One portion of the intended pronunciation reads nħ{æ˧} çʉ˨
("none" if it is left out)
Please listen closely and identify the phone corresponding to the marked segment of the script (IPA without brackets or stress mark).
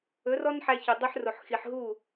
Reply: æ˧